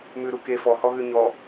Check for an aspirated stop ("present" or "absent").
absent